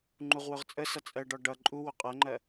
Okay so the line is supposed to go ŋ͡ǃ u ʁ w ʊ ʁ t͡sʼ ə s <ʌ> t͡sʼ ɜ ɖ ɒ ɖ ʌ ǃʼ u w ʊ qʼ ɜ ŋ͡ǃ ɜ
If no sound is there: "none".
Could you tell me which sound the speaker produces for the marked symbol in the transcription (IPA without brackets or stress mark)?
ʌ